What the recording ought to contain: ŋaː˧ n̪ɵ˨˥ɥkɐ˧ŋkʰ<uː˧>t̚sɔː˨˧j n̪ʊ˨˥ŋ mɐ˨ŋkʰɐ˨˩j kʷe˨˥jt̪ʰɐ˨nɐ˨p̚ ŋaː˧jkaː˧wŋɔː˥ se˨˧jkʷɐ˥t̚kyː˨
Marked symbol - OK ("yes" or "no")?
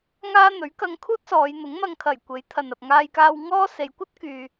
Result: no